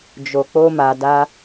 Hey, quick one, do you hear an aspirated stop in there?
no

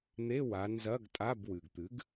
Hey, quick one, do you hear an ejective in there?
yes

